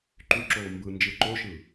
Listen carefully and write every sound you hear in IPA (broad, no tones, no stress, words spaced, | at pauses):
ǃyǁoː mbɯ nd͡ʒɯǃoʃɯ